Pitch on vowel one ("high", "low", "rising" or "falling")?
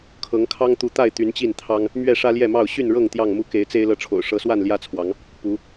rising